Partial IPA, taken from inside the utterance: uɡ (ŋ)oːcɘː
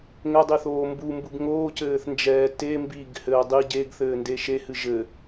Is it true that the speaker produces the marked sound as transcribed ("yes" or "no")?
yes